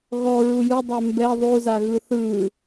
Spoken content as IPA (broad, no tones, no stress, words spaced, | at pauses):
ɣɔ ɹujɯ dˤœmbɛ ðˤu zaɣɯθɯ